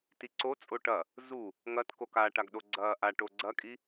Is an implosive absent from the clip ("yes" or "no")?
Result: no